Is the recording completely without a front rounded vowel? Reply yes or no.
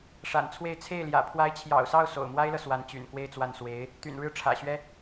no